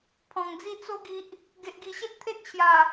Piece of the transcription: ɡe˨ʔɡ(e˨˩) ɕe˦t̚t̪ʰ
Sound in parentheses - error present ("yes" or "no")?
yes